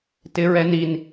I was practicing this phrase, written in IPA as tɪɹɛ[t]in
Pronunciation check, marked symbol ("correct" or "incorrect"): incorrect